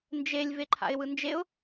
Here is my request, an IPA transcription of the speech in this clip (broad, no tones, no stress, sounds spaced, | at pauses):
n d͡ʒ e lʲ v e ǃʰ a̰ ɪ̯ w ɯ n d͡ʒ e ʊ̯